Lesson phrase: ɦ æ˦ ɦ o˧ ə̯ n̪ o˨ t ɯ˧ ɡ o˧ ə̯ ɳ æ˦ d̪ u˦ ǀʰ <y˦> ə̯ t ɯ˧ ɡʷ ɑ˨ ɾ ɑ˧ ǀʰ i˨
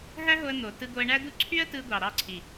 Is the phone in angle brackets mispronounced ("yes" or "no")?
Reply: no